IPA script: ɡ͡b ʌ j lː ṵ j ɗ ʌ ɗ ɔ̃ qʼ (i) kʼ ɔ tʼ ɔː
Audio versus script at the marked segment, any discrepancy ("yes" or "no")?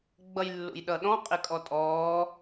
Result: yes